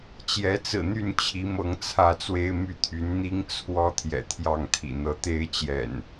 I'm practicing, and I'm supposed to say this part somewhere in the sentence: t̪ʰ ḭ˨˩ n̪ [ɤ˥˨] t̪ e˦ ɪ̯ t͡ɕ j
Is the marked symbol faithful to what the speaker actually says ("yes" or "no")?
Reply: no